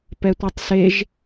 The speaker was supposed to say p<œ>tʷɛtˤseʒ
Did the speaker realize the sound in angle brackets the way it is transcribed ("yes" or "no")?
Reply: no